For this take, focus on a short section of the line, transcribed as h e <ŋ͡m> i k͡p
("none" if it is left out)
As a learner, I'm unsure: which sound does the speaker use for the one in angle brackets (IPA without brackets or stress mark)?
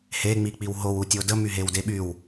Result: ŋ͡m